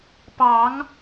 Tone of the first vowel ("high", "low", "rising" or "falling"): rising